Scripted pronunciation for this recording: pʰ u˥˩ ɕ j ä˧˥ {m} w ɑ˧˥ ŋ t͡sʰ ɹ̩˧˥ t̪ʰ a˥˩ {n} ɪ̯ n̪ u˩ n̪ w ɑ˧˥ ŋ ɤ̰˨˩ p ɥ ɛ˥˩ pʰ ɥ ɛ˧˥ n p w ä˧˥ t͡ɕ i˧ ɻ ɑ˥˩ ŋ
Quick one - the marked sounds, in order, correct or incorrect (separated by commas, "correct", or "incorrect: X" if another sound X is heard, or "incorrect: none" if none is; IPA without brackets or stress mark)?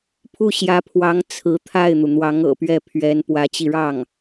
incorrect: pʰ, incorrect: none